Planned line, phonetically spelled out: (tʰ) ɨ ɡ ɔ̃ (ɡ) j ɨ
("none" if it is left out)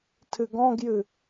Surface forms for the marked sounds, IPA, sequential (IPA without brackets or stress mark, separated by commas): tʰ, ɡ